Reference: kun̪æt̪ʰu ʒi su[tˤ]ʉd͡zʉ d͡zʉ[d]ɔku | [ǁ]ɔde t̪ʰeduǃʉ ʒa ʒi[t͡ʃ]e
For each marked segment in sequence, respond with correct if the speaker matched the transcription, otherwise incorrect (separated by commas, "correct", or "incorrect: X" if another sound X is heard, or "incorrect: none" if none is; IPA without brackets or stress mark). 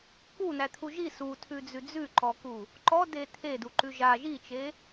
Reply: incorrect: tʰ, incorrect: ǃ, incorrect: ǃ, correct